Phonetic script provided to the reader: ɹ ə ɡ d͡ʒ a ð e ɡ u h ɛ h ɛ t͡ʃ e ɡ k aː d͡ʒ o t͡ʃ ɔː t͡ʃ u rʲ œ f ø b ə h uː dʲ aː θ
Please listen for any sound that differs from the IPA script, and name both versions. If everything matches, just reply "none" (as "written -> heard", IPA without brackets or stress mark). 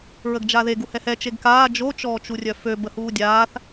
none